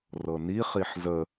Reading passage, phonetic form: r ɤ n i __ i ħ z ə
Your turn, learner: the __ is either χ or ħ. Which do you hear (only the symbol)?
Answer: χ